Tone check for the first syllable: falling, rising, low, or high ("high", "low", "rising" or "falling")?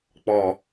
low